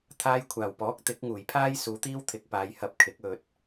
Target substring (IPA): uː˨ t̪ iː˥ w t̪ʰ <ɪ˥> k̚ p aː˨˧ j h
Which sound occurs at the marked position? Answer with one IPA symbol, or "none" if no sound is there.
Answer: ɪ˨˥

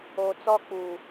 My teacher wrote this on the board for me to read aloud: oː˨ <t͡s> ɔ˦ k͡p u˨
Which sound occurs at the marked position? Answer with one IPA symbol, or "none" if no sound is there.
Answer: t͡s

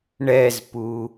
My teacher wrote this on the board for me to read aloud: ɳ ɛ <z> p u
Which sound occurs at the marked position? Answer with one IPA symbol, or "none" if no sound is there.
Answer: z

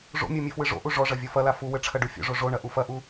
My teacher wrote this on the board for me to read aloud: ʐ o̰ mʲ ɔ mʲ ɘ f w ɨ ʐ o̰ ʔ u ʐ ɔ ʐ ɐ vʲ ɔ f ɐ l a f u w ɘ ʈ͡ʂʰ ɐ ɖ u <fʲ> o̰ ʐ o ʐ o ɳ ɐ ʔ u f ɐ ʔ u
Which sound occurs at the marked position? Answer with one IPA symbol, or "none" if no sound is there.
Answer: fʲ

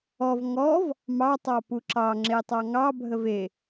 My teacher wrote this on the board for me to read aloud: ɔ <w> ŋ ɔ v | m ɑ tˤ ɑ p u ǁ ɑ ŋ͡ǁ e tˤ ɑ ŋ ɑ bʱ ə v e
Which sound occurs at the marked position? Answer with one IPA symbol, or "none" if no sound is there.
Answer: v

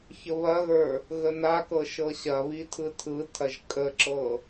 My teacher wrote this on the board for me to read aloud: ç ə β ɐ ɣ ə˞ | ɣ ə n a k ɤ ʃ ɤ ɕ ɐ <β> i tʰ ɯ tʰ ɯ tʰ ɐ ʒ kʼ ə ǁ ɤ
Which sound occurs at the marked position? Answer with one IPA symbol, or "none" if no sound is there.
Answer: β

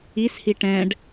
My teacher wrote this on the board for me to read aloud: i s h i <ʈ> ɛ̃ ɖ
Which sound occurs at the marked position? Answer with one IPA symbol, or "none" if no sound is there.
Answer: ʈ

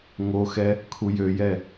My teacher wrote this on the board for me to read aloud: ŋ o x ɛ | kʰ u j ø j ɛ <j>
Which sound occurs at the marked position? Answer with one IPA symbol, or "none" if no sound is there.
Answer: none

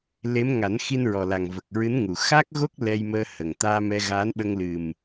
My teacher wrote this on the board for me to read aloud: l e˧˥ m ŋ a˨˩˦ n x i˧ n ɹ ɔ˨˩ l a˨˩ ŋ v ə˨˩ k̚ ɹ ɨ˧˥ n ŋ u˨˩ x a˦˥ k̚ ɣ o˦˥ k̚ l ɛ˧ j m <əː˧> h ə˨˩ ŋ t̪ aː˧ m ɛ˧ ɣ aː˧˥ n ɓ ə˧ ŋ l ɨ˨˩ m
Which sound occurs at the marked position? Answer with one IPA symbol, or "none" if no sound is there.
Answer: əː˧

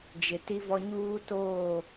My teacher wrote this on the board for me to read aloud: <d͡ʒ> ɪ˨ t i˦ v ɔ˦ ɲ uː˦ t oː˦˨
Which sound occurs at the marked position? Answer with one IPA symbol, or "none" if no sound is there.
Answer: d͡ʒ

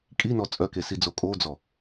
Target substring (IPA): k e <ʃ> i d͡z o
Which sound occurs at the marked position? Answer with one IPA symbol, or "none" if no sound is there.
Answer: s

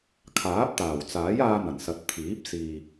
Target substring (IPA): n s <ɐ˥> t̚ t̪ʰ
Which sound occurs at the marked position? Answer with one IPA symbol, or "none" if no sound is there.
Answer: ɐ˨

